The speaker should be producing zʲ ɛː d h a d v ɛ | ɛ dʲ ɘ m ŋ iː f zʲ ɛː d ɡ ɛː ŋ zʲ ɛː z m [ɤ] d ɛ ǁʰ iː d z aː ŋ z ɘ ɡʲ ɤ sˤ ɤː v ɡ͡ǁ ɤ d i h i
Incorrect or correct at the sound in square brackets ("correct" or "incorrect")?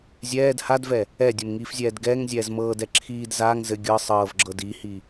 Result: incorrect